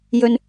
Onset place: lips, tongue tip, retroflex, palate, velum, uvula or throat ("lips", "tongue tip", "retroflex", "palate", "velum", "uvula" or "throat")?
palate